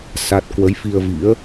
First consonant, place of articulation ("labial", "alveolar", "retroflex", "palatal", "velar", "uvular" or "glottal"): alveolar